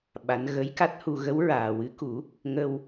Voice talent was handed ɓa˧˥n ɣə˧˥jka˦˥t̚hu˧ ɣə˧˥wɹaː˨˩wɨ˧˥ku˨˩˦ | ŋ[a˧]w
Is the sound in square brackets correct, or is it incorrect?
incorrect